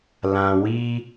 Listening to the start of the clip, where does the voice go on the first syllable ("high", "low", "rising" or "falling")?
low